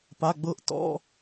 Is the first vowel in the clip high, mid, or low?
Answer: low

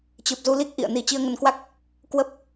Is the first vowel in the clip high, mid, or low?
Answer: high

